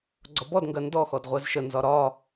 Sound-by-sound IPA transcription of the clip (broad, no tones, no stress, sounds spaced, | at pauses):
ɡ͡ǀ ɒ b ɔ d ŋ ɡ ɜ n d ɔ x ɔ d ʁʷ ɛ z ʃ ə n z ɒ ɾ ɒ